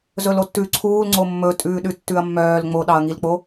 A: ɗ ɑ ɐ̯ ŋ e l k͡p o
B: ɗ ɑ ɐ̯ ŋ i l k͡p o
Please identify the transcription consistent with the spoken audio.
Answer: B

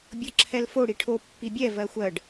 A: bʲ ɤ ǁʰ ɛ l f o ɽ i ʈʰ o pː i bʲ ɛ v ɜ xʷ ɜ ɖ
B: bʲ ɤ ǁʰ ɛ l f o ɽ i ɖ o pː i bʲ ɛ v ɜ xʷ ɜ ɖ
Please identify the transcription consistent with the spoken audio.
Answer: A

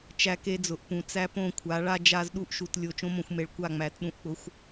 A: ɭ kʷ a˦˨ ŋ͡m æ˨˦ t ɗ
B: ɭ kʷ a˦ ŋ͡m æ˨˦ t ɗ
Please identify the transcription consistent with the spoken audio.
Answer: A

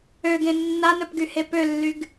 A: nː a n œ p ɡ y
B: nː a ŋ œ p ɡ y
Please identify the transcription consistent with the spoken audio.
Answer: A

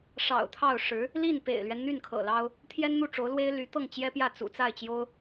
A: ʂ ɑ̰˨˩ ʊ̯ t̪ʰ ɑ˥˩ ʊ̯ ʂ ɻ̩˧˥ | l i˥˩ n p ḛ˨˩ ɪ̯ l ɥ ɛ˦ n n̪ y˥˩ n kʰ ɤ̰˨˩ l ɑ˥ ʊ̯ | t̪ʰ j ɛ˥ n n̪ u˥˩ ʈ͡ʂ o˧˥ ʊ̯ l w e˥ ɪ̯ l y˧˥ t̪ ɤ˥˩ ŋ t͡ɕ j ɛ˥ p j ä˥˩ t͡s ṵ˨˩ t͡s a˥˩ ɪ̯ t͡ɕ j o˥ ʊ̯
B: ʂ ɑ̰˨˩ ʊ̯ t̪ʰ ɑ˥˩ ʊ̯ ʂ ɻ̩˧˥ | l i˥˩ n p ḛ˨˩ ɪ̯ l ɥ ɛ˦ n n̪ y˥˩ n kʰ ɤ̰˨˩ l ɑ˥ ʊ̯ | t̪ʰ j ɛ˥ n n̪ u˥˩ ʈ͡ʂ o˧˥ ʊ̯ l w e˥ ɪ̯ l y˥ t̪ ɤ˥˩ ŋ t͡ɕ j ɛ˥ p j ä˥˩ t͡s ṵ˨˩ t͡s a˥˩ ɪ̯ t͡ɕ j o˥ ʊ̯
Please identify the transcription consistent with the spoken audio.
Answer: A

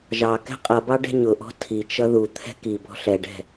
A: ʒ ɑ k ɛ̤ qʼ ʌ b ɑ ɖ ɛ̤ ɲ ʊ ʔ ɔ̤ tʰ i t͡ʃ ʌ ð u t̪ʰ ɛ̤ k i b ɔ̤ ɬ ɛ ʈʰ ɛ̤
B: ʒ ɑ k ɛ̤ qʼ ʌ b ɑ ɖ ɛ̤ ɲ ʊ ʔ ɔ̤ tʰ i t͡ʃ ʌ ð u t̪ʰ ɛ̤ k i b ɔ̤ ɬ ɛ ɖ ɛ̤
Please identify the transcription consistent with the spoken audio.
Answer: B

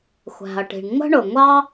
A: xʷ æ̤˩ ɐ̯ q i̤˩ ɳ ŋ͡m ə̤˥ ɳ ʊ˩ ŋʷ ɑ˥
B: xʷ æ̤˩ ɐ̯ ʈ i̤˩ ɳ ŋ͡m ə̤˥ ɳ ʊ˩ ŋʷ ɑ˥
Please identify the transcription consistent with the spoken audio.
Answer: B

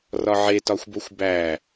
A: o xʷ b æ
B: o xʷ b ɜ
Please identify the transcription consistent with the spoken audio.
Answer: A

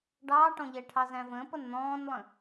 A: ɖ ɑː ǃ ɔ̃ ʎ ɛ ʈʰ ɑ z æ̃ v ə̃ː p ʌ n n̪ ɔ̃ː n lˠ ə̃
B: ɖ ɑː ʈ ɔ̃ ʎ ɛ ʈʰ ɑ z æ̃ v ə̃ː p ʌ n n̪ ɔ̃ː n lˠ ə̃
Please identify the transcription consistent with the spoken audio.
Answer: B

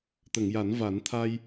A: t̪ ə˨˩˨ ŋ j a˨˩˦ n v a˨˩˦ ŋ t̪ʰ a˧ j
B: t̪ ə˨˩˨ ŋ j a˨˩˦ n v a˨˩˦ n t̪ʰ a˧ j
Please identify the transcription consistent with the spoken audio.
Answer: B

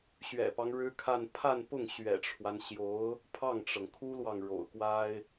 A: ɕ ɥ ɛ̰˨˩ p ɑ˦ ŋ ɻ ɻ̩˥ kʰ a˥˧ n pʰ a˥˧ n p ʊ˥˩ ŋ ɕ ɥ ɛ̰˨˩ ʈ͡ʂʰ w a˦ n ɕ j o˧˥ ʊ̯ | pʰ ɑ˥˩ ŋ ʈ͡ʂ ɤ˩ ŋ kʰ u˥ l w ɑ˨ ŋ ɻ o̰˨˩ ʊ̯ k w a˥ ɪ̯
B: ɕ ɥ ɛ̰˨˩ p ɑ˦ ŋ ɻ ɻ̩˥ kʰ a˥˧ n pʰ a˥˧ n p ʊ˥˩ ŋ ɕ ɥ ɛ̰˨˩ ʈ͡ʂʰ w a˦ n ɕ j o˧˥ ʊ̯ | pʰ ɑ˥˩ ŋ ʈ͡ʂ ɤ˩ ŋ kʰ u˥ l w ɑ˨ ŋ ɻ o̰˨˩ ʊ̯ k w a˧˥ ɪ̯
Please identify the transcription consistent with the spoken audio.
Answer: A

